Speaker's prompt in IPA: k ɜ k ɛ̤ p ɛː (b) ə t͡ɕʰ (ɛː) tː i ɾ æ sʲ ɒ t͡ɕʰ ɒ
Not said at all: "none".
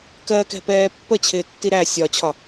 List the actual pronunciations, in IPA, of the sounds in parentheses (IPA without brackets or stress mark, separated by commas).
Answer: pː, ɪː